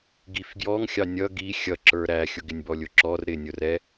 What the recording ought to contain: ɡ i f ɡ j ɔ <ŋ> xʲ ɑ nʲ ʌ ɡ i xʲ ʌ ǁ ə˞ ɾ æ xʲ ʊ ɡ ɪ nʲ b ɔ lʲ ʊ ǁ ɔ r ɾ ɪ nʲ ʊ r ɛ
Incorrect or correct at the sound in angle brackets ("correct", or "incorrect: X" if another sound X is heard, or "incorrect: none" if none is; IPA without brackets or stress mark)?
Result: correct